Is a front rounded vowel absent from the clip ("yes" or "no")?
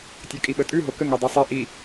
no